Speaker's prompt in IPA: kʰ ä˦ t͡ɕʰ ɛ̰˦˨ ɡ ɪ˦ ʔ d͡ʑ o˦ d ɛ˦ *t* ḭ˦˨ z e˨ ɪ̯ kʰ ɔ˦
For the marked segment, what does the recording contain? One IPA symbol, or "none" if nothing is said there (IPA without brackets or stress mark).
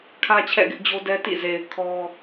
t